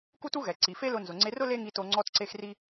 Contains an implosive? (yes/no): no